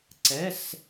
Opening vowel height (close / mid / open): mid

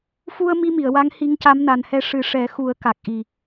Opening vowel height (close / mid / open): close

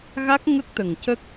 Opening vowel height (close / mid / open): open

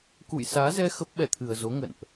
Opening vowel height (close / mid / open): close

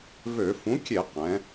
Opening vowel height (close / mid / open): mid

